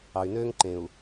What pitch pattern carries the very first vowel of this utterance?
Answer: low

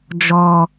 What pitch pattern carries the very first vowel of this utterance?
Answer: low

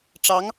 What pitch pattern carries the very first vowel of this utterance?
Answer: rising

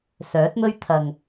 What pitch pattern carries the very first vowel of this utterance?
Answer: rising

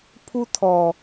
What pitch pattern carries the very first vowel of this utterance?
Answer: high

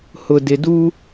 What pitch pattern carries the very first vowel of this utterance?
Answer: low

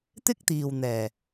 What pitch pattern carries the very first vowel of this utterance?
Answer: high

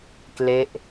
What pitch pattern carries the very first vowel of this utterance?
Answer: falling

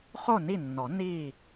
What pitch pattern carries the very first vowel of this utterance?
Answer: falling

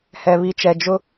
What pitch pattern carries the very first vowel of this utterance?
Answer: low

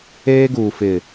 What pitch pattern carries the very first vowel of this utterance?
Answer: high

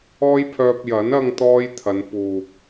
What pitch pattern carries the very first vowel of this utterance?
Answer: high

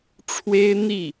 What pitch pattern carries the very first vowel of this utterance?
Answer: high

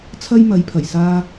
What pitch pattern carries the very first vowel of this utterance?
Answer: high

